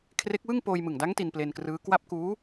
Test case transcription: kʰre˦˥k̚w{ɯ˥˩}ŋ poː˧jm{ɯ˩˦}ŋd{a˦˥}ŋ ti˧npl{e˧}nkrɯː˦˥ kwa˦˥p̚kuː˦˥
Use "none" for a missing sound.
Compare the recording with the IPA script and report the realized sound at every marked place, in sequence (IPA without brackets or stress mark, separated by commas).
ɯ˥˩, ɯ˨˩, a˦˥, e˧